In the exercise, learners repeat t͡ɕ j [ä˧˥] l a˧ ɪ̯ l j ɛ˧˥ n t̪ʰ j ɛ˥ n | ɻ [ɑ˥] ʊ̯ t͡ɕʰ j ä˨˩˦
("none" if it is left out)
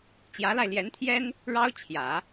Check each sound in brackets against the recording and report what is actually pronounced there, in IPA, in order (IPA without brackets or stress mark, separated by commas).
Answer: ä˧˥, ɑ˥